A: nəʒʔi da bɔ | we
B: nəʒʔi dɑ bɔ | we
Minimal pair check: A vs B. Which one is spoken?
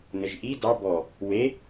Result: B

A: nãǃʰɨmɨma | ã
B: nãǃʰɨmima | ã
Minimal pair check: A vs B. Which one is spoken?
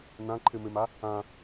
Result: A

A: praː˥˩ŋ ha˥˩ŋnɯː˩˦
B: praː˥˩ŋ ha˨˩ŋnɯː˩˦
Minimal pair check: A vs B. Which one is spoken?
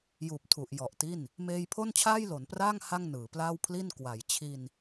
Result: A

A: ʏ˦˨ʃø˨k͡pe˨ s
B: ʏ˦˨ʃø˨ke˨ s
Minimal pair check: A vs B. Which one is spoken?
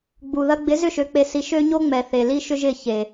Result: A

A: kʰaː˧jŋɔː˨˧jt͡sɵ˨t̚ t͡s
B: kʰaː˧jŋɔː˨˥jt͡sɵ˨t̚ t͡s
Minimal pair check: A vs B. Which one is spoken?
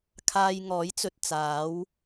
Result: B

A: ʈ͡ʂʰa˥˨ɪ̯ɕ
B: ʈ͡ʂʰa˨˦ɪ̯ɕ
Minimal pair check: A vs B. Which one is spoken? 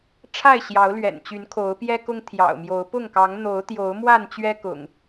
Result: A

